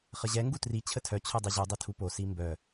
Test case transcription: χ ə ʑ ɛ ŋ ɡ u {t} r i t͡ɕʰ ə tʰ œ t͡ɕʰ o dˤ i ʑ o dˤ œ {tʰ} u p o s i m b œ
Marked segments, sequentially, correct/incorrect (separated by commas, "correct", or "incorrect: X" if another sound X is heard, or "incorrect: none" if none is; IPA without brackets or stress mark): correct, correct